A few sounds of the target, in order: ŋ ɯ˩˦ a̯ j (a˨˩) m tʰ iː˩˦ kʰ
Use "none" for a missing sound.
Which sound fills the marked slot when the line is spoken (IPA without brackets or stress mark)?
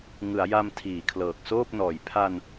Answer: a˧